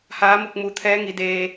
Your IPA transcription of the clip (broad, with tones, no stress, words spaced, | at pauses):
haː˩˧mu˧˩k̚ mu˩t̪ʰɛː˧˥ŋi˩˧deː˧